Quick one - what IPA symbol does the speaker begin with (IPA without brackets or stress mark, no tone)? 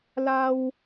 l